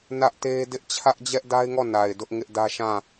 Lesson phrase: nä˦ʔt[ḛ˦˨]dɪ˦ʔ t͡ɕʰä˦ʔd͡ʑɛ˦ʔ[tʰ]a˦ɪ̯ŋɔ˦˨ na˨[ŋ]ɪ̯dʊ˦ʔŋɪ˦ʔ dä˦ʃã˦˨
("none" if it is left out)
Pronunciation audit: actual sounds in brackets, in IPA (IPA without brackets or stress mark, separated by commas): e˦, d, none